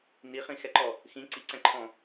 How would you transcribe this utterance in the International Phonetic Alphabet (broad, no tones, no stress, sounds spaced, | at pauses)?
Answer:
n i χ ĩ x ɛ ǃ ɔ | x ĩ ǀ i ǀ ɛ̃ ǃʰ ɔ̃